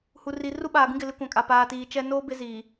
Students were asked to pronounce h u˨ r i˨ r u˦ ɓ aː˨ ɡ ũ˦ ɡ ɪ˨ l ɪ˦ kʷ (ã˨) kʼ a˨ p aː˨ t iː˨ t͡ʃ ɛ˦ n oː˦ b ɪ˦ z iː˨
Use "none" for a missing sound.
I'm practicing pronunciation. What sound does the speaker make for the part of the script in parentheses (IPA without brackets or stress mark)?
ã˨